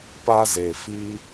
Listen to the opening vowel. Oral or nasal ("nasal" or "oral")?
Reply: oral